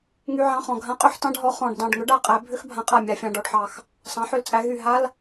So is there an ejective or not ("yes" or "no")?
yes